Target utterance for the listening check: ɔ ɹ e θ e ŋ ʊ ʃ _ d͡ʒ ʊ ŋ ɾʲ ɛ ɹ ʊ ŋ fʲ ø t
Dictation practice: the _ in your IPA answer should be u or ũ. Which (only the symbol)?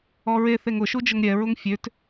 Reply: u